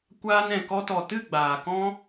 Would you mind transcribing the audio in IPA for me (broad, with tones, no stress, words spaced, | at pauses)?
kʷaː˧nɛ̃˨ kɔ˧tɔ˨tɨ˦˨ ɡ͡baː˨kɔ̃˦